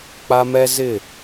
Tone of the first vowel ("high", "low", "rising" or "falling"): high